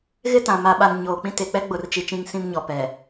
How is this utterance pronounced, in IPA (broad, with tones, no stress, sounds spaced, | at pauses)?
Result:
ɣ ɪ˦ t ã˨ m a˨ ɓ a˨ n ɲ oː˨ k͡p ĩ˦ t e˨ k͡p ɛ˦ ɡ͡b ʊ˨ r t͡ʃ i˨ t͡ʃ ĩ˦ ŋ s ĩ˦ m ɲ ɔ˨ p ɛ˨